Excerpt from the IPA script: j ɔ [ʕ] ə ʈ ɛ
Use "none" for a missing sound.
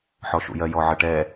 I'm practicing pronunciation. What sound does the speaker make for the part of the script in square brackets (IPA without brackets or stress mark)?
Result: ʕ